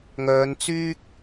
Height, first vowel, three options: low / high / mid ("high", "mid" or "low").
mid